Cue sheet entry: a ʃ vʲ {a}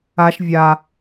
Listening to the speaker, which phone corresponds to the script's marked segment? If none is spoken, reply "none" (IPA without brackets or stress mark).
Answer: a